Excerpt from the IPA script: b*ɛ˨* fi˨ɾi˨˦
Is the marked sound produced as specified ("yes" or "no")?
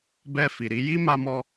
no